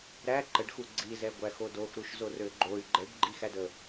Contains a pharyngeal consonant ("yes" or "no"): no